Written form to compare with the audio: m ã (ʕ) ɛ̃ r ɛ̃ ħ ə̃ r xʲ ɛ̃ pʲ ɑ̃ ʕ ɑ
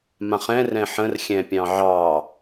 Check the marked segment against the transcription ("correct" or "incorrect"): incorrect